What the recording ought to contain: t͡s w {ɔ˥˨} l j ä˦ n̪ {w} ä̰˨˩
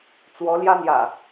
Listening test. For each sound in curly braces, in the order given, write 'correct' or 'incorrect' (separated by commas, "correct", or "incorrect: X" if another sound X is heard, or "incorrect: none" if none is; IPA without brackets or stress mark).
incorrect: ɔ˨˦, incorrect: j